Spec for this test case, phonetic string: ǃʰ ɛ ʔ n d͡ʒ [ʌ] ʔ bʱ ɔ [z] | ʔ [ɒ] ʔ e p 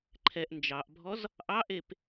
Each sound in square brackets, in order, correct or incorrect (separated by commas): incorrect, correct, incorrect